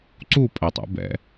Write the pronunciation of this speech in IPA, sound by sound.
ǀ u pʼ ɛ tˤ ṵ b ɛ̰

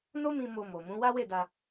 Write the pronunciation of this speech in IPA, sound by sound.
n o˦ m ĩ˧ m o˧ m o˨ m ũ˨˦ w a˦ w e˦˨ d a˧

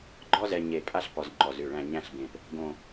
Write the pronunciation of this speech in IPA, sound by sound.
ɡ͡ǃ ɔ˥ z ɛ˧ ɲ e˧˩ pʼ a˥ ɬ p ɔ˧ z ŋ͡ǃ ɔ˧˩ z ʉ˧˩ ɭ æ̃˥˧ ɲ æ̃˥˧ ɬ b ẽ˧˩ p | ɡ õ˥˧

